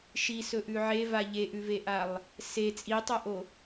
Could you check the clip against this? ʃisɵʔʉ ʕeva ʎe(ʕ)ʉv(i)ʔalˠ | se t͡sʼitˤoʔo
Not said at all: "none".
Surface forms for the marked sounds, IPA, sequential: ʔ, e

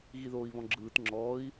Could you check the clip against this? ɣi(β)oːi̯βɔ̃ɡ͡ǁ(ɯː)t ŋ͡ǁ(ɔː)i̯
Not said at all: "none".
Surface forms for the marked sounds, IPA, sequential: ð, ɯː, ɔː

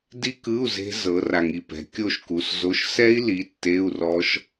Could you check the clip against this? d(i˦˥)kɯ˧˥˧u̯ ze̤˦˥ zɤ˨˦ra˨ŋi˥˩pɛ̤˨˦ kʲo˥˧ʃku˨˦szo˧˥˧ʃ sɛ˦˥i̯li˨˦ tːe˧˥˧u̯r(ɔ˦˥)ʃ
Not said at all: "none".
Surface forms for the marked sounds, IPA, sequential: i˦˥, ɔ˦˥

